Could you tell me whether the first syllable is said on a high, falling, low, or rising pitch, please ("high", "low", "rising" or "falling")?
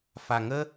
low